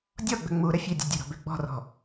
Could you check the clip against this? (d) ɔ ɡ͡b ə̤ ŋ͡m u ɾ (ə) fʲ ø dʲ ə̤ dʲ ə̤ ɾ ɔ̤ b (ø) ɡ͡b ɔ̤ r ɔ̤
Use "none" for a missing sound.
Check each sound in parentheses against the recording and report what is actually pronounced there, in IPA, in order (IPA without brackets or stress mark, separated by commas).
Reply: dʲ, ə, ø